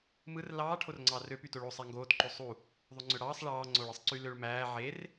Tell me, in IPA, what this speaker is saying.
m ɯ r l ɑː ʈʰ o r ŋ͡ǀ ɑː r ø p y t o ɭ o sˤ æ ŋ ɡ oː t ǃ o sˤ u | ðˤ o ŋ͡ǀ ø ɽ ɑː sˤ ɭ ɑː ŋ͡ǀ o ɭ ɯ sˤ ǀ y l ø ɭ m æː ʕ e r

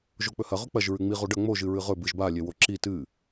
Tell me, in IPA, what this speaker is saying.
ʒ o k͡p ɵ h ɐ ʁ ɵ k͡p ɐ ʒ ɹ ʉ ŋ͡m i ʁ o ɖ ɐ ŋ͡m o ʒ ɨ ɹ ɨ ʁ ɵ b ɨ ʒ b a lʲ e w o ǁ i t ɨ

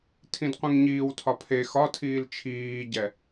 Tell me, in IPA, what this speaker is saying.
tʰ ĩ d qʷ ĩ ŋ ɲ iː w tʰ ɒ pʰ e x ɒ tʰ iː l t͡ʃʰ iː ɟ ɛ

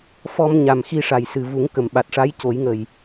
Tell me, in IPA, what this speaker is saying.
f ɔ˧ m ɲ a˨˩ m x i˧ ʂ a˨˩ j s ɨ˨˩ v u˨˩˦ ŋ k ə˨˩ m ɓ a˨˩ t̚ ʂ a˧˥ j c o˨˩˦ j ŋ ə˨˩ j

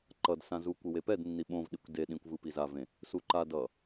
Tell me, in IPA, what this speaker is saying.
ǃ ʌ d s ã z u kʷ ɯ w e p ɛ d nː i ɓ õ v ɗ i kʷ d e ɗ ĩ kʷ v ɯ p i z a v ẽ | s u ǃ a d ʌ

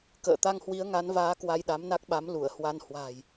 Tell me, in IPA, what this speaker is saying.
k ə̰ː˧˨ t̪ a˧ ŋ h w i˨˦ ə̯ ŋ a˨˦ n v aː˨˦ k w a˧ j ɗ a˨˦ m n a˦˥ k̚ ɓ a˨˦ m l u˧˩ ə̯ h w a˧ n h w a̤ː˨˩ j

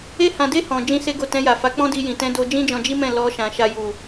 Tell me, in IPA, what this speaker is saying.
e˦ h ã˧ d e˦ h ɔ̃˧ d͡ʒ ĩ˦ s e˦ ɡ o˦˨ t ɛ̃˧ j a˨ f a˨˦ k͡p ɔ̃˦ d i˧ j ĩ˨ t ɛ̃˧ d o˧ d͡ʒ ĩ˦ d͡ʒ ɔ̃˧ d͡ʒ i˦ m ɛ̃˦˨ l ɔ˧ ʃ ã˨ ʃ a˧ j u˨

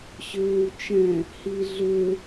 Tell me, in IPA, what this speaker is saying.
ɕ ʏː w t͡ʃ ɛ̃ | h i ɮ ʏ

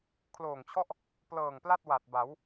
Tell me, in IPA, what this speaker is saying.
kʰ l oː˨˩ ŋ t͡ɕʰ ɔ˥˩ ʔ | p l ɤː˨˩ ŋ p l a˥˩ t̚ w a˨˩ t̚ b a˩˦ w

